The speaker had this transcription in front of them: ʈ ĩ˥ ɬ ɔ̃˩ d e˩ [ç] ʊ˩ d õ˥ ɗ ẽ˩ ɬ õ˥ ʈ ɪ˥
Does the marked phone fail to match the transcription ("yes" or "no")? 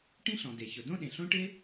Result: no